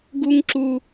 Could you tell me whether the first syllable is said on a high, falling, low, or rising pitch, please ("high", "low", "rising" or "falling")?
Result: high